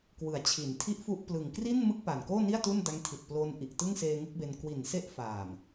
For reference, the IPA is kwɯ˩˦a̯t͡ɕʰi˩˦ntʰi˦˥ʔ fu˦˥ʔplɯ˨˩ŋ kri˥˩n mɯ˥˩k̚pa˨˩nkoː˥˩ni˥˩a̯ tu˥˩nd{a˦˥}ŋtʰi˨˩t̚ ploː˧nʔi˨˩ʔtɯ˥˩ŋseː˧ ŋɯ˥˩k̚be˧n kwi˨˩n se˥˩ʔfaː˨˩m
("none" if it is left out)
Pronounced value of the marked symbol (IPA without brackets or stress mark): a˦˥